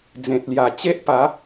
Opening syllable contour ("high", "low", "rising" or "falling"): low